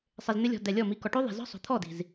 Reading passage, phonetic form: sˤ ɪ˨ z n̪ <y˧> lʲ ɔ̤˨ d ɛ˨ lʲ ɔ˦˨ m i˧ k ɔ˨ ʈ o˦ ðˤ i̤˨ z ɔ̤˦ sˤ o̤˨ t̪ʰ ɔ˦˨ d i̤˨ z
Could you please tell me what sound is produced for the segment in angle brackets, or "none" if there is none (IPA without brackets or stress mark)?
ɪ˧